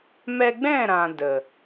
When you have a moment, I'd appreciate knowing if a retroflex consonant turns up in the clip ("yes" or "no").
no